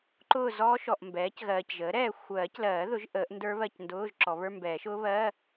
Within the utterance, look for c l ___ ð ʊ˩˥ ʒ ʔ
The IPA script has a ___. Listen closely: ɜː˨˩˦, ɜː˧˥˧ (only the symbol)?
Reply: ɜː˨˩˦